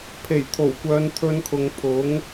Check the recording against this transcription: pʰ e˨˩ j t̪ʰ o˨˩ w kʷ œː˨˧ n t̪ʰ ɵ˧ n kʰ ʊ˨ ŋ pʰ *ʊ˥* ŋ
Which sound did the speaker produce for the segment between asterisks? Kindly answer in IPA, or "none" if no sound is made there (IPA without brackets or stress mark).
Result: ʊ˨˥